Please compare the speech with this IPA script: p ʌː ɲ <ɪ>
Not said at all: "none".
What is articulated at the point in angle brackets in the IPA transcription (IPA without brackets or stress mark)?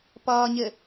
ɪ